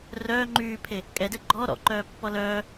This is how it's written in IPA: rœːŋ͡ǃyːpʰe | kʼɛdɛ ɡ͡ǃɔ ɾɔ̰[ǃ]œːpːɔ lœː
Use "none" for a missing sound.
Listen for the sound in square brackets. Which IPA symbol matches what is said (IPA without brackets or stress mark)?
ǃ